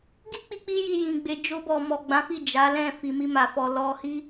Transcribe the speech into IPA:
ɡ i˦ k͡p i˧ k͡p i˧ j i˨ j ĩ˨ ɡ͡b e˧ d͡ʒ o˧ b ɔ˨ m ɔ˨ ɡ͡b ã˨˦ f i˦˨ d͡ʒ a˨˦ l ɛ̃˦˨ f i˨ m i˧ m a˨ f ɔ˨ l ɔ˧ h i˦

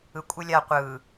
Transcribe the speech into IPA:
ɯ kʷʼ ɯ lʲ a qʷ ɯ

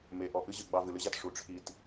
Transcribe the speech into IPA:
m e˨ ʔ ɔ˨ ʔ ɨ˦ ʑ ɨ˨ ɡ͡b ɑ˧ v ɨ˨ l ɨ˦ ʑ a˧ t ʂ u˨ ʈ͡ʂʰ i˧ t

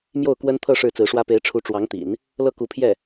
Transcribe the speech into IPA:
m j o˥˩ ʊ̯ k w ə˥ n t̪ʰ ɤ˥˧ ʂ ɻ̩˥˩ t͡s ɹ̩˧˥ ʂ w ä˥ p e˧˥ ɪ̯ ʈ͡ʂʰ u˧˥ ʈ͡ʂ w ɑ˧˥ ŋ t̪ ḭ˨˩˦ n | l ɤ˥˩ k u˧˥ pʰ j ɛ˥˩

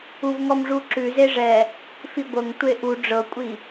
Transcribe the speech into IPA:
u v ŋ ɔ m ʐ u ǁ ʉ z e ʐ ɛ | f i ɡʷ ɤ ŋ tʷ e ʔ u ɖ͡ʐ ɤ kʷʼ i

